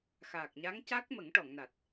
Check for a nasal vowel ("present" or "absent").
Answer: absent